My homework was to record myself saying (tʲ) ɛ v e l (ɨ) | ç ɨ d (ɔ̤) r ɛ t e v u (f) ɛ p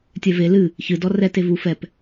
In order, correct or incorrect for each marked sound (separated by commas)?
correct, correct, incorrect, correct